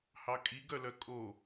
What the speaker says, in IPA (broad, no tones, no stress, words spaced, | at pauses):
hɑkʼiɡœlœ kʼo